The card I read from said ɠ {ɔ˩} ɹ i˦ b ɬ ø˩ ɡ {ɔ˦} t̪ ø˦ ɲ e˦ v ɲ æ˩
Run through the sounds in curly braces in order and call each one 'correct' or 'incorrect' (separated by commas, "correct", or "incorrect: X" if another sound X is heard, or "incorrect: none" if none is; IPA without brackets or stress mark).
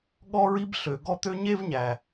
incorrect: ɔ˦, correct